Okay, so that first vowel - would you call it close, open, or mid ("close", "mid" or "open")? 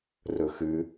mid